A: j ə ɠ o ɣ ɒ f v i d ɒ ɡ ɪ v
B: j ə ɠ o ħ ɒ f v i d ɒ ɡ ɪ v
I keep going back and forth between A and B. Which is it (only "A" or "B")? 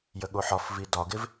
B